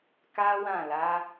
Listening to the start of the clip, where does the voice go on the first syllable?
high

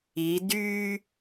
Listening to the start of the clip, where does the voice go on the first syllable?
rising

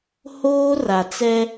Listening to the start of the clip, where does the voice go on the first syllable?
high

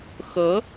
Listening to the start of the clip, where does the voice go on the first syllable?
rising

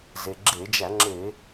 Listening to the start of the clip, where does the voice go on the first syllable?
low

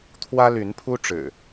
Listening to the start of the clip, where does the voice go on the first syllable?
high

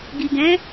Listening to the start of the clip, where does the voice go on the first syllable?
low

